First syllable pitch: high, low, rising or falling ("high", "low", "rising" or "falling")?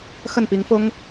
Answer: falling